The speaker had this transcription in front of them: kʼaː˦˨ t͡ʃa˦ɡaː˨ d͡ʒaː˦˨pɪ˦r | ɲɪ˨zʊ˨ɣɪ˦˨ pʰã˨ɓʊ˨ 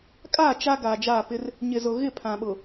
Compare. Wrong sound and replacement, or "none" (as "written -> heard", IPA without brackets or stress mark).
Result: none